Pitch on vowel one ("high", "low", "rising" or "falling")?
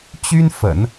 high